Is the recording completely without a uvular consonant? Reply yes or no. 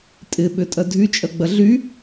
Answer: yes